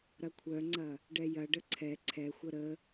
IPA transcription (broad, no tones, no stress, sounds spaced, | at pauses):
ɾ ɐ kʷʰ œ ŋ͡ǀ ɐ | ɖ ɛ j ɐ ɖ ə ǀʰ ɛ ǀʰ ɛ xʷ ə ɾ ə